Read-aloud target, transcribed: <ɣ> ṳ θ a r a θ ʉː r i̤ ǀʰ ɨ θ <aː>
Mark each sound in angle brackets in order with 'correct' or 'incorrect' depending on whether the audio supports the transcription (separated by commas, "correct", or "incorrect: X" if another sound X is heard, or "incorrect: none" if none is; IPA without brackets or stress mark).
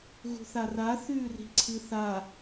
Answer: correct, incorrect: a